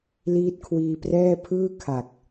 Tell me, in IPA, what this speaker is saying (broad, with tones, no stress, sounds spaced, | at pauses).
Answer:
l iː˦˥ t̚ kʰ w iː˧ p r ɛː˥˩ pʰ ɯː˥˩ kʰ a˨˩ k̚